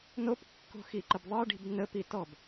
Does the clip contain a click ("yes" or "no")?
yes